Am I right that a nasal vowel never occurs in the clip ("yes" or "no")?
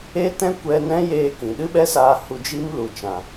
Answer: no